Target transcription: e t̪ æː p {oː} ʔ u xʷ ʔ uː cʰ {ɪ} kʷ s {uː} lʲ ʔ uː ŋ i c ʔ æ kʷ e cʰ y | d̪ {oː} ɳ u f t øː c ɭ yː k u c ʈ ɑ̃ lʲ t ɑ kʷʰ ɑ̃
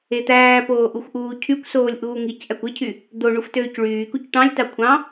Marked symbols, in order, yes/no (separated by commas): yes, no, no, no